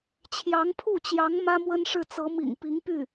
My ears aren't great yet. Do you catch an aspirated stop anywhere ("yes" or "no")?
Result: yes